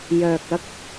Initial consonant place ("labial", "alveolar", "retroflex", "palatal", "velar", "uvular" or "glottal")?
palatal